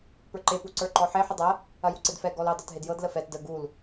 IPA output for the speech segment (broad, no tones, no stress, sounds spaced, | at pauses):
p ə˞ ǃ e p u ǀ ə˞ ǃ ɔ ħ e ħ ə dˤ ɐ | ɐ j u ǀ e d f ɛ ɡ ɔ l ɵ dˤ ə˞ t ɦ e d j ɤ d l ə f ɛ t d ə ɡ u l